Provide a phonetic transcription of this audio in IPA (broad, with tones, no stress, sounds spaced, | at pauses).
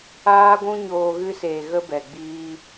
aː˦ ɡʷ ũ˦ ɲ oː˧ ɣ ɨ˧ s eː˨ ɣ ə˦ b ɛ˨ ɡ͡b iː˧